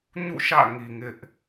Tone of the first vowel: falling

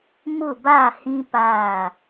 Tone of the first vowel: falling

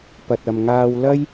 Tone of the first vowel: low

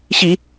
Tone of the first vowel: low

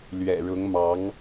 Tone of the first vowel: low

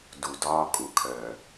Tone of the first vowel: low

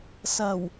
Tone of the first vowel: low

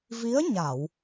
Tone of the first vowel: rising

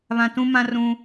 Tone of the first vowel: low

